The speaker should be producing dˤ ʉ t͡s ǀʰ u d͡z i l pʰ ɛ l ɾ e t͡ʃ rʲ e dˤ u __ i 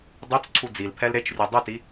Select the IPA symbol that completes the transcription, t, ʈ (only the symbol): t